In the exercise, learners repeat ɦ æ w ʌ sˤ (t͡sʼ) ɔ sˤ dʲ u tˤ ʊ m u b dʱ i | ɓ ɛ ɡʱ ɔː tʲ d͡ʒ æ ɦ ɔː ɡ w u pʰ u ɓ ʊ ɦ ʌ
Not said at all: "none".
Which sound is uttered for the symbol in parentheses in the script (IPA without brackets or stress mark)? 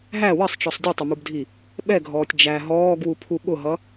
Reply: t͡ʃ